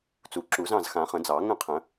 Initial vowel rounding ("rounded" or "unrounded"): rounded